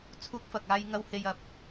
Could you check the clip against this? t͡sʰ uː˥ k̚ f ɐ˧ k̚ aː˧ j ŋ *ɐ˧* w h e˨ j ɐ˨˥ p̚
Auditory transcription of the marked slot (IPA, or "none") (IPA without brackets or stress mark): ɐ˧